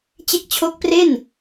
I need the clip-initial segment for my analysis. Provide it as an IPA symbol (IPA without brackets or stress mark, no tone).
t͡ɕ